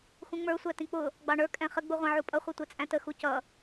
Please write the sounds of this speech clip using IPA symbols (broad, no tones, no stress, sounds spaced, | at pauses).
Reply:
x ũ ŋ͡m ə˞ sʷ æ t ĩ k͡p ʊ | ɡ͡b ɑ ɳ ə˞ kʼ ɛ̃ χ ə ɡ͡b u ʁʷ ɑ̃ ʕ u pʼ ʌ χʷ ɛ tʷ ɛ t͡sʼ æ̃ t ə x u c ʌ